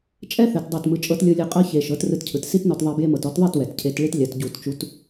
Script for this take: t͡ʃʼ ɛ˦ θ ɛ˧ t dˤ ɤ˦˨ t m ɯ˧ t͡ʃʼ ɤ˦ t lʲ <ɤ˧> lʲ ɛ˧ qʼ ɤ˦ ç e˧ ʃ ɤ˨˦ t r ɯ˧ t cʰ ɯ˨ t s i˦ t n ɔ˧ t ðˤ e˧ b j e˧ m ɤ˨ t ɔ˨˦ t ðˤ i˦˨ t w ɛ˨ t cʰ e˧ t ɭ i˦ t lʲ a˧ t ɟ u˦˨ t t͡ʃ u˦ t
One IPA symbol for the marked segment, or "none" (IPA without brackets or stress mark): ɤ˧